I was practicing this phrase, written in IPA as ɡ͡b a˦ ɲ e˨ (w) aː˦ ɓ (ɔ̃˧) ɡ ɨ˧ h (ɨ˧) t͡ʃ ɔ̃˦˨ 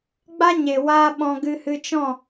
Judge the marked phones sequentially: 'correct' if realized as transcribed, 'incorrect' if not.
correct, correct, correct

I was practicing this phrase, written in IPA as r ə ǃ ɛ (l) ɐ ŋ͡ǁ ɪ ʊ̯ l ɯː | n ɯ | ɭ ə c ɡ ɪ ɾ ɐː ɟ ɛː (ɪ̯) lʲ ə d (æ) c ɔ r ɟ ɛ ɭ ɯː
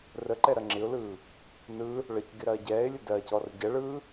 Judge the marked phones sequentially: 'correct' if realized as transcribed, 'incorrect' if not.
incorrect: ɾ, correct, incorrect: ɜ

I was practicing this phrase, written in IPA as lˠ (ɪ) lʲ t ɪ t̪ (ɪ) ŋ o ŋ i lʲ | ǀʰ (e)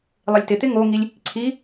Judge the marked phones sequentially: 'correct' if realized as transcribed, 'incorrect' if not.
correct, correct, incorrect: i

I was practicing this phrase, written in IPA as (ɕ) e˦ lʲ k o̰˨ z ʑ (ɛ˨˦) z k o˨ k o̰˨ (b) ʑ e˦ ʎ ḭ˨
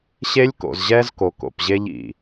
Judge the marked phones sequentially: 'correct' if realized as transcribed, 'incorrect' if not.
correct, incorrect: ɛ˦, incorrect: p

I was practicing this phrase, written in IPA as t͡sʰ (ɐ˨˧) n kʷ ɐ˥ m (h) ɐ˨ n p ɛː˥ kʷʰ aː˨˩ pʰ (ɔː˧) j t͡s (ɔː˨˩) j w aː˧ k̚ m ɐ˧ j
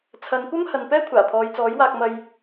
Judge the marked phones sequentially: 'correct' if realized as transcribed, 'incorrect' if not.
correct, correct, incorrect: ɔː˨˧, incorrect: ɔː˨˥

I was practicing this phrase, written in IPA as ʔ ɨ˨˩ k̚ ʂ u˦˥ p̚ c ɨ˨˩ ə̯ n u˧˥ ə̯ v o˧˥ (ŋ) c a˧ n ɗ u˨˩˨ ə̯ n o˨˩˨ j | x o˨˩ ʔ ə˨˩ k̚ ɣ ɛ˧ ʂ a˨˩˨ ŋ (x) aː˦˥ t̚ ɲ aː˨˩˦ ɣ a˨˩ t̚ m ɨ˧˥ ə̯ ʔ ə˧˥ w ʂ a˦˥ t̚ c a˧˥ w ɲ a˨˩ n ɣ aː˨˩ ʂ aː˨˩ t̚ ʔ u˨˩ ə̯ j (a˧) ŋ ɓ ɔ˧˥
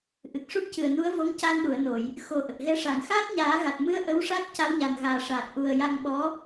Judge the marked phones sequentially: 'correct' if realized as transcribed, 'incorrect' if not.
correct, correct, correct

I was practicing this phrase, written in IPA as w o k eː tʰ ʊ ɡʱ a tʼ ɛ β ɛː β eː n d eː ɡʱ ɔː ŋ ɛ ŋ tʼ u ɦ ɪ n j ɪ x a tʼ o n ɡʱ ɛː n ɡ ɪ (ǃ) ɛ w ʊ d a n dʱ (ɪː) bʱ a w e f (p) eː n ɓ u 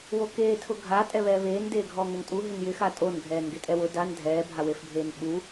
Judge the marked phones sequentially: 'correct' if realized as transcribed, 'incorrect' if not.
incorrect: tʼ, incorrect: ɛː, incorrect: bʱ

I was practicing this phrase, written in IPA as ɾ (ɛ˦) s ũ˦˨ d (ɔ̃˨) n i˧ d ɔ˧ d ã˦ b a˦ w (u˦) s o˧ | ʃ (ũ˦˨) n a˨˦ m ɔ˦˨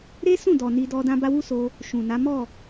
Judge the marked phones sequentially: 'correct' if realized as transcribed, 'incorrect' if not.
incorrect: e˦, incorrect: ɔ˨, correct, incorrect: ũ˨

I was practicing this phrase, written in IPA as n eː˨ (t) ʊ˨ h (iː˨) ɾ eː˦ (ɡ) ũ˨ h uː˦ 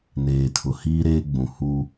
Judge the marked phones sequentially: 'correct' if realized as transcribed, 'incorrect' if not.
incorrect: tʰ, incorrect: iː˦, incorrect: ɡ͡b

